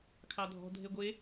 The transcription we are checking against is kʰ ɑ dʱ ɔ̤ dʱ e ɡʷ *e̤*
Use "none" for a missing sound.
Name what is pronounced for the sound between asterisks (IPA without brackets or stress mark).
e